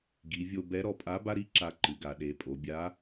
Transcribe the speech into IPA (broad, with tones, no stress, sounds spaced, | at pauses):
ɡ i˩˧ vʲ o˧ b ɛ˧˥ ɾ ɔ˧ pʼ a˧˥ b a˥ ɾ i˧˥ ǁ a˧ ǃ ɨ˩˧ ɡ a˩˧ ɗ e˩˧ pʼ o˩˧ bʲ a˧˥